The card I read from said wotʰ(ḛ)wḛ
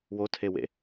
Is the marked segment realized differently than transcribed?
yes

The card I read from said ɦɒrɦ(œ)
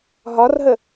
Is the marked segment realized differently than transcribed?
yes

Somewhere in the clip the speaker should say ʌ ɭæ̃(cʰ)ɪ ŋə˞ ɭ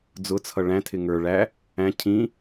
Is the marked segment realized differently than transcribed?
yes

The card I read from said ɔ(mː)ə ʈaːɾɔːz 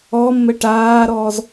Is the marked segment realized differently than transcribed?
no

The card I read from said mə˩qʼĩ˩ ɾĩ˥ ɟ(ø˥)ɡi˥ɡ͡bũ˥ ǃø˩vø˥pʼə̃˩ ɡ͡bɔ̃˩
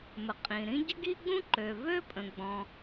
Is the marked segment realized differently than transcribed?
yes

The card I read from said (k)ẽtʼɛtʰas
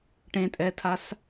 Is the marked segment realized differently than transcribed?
yes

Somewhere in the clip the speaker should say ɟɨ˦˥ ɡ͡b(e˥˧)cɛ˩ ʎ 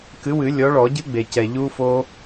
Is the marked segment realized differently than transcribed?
yes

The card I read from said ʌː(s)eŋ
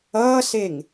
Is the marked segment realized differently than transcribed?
no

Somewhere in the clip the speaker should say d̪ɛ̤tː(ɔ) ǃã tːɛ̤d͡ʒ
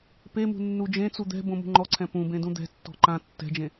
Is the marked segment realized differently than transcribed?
yes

